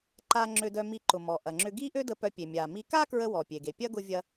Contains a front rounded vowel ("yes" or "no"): yes